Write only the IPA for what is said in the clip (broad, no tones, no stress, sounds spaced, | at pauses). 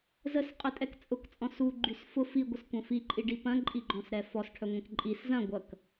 z ə s qʼ ə tʼ ɛ k t͡sʼ ʊ k t͡sʼ ɔ̃ s u ɡ͡ǃ y s f ʊ f i ɡʷ ə s kʷ ɐ̃ f i ǃʼ i ɖ i p ɐ̃ ǃʼ i ɡ͡ǃ ɔ̃ s ɾ ɛ f ɔ s ʈʰ œ ŋʷ ɛ̃ k ǃʼ i s z ɐ̃ ɡʷ ɐ k